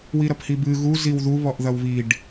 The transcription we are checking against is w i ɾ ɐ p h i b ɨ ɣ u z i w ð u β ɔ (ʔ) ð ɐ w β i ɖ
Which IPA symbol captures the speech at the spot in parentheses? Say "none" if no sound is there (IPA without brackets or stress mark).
ʔ